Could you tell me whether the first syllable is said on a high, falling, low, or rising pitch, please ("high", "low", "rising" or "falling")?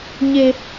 high